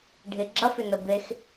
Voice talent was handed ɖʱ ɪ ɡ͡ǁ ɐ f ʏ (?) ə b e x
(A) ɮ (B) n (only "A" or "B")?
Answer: B